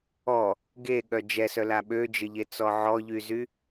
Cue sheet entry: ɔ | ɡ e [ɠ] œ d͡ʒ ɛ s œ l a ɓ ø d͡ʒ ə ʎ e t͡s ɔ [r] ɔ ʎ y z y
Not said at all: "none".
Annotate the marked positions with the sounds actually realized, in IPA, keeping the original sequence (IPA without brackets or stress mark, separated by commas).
ɠ, ʕ